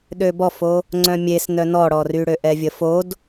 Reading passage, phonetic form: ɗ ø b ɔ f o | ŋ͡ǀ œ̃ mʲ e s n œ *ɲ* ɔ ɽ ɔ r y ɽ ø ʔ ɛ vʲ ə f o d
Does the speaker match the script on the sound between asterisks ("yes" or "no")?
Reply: no